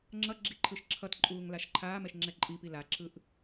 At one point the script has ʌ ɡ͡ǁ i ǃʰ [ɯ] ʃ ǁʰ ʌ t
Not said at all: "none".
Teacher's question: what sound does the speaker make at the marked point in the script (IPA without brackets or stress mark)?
ɯ